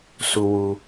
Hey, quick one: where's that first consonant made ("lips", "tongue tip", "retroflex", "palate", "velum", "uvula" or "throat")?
tongue tip